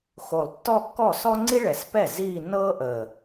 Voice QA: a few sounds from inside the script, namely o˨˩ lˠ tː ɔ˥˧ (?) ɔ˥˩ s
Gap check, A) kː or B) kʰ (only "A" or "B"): A